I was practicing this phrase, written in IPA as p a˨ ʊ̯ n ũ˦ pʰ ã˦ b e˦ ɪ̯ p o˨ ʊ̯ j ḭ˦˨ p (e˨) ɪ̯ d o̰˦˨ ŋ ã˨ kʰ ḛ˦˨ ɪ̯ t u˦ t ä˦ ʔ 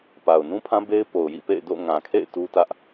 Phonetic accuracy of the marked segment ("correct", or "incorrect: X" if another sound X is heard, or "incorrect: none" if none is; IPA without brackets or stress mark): incorrect: ḛ˦˨